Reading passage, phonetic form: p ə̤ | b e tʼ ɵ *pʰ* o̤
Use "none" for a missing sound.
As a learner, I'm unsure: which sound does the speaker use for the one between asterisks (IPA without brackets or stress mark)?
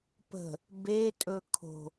kʰ